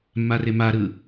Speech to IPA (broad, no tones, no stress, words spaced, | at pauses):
mːaremaɾɯ